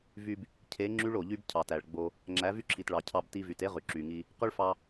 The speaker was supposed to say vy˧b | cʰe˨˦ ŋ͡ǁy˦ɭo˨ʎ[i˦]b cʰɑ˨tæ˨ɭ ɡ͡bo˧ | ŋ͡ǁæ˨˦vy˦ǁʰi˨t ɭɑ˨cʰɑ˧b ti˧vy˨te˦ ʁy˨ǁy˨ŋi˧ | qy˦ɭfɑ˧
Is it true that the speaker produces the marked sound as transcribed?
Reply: no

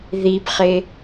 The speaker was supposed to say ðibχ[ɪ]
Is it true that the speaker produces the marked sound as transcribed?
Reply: yes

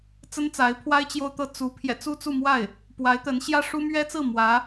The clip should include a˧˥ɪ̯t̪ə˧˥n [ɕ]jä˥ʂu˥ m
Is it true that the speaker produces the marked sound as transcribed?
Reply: yes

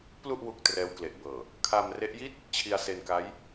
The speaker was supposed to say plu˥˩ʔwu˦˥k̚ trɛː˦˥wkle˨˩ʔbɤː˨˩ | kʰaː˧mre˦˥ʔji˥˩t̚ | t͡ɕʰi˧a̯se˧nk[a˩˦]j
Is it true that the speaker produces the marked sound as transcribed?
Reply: no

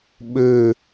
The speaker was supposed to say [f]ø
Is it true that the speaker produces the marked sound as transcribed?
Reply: no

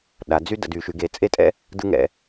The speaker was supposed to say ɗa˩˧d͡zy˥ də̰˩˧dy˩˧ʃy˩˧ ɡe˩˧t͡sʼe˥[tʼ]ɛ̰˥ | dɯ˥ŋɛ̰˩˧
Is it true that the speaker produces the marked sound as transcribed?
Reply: yes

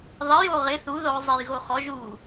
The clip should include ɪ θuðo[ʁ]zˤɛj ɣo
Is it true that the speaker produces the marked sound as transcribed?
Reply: yes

